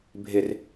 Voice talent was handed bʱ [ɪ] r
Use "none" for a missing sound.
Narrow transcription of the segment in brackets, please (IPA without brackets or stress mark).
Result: ɪ